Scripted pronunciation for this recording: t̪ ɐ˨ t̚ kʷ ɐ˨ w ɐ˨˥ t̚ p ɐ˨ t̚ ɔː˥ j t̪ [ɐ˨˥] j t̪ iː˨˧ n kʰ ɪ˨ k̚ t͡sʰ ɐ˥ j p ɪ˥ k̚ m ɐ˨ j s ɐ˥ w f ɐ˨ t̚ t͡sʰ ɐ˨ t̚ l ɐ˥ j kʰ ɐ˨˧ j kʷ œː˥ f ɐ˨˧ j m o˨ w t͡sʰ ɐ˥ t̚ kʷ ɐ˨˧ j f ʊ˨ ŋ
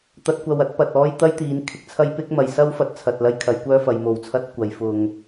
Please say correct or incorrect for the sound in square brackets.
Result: incorrect